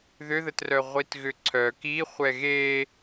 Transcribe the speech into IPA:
ðʏðətrœ ʁʷitɣʏǀʰœ kiχʷɛ ɣe

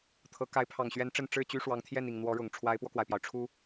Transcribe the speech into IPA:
t̪ʰɤ˧˥ ka˧˥ɪ̯pʰɑ˨˩ŋɕɥɛ˧˥n ʈ͡ʂə˥˧n ʈ͡ʂɻ̩˥˩t͡ɕy˥ ʂwɑ˧˥ŋt̪ʰjɛ˥˩ni˨˩ŋ n̪wɔ˧˥ɻʊ˨˩ŋ ʈ͡ʂʰwa˧˥ɪ̯pwɔ˧kwa˩ɪ̯pjɑ˩ʊ̯ ʈ͡ʂʰu˧˥

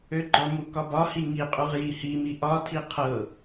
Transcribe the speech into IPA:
øɡ͡ǃɒmu kɒbɒhi ŋiqʼuʁ jihimi ʔɒtʰi qʰɤ

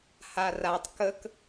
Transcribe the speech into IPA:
haratˤ kək

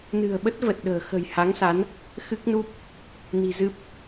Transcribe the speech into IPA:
nɨ̤˨˩ə̯ɓə˦˥t̚ və˨˩t̚ɗə̤ː˨˩ xə̤˨˩j ha˨˦ŋsa˨˦n | xɨ˦˥k̚nu˦˥p̚ | ni̤˨˩zɨ˦˥p̚

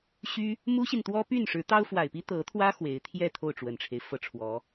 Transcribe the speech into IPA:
ɕy˥ | mu˥ɕi˨nt̪wɔ˥ py˥˩nʂɻ̩˧˥ t̪ɑ˥ʊ̯fwa˨˩ɪ̯pi˥ t̪ɤ˧˥t̪ʰwä˥ xwe˧˥ɪ̯ t̪ʰjɛ˥˧ t̪ʰo˥˩ʊ̯ʈ͡ʂwə˨˩nʈ͡ʂʰe˦ɪ̯ fɤ˥˩ʈ͡ʂʰwɔ˧˥

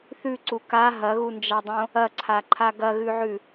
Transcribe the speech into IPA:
θʉǀu ka ɦɐɣund͡ʒadˤõ | ɐǀʰaǃʰa ɡɐɣʉʕʉ

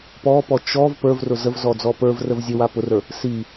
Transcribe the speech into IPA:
pɔpɔ t͡ʃɔv pə˞vrʊ zəvzɔd͡zɔ pə˞vrəv zʲəwa pʊrə˞ | si

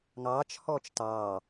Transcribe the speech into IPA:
ŋɑːt͡ʃ hɔːt͡ʃtɑː

